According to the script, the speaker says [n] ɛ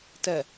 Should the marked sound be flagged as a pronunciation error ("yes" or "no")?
yes